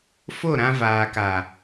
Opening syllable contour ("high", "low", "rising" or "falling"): falling